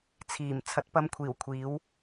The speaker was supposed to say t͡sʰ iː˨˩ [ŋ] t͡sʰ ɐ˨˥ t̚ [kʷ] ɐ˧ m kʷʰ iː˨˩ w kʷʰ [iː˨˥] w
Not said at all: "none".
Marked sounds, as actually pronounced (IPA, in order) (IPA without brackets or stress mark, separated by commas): m, p, iː˨˥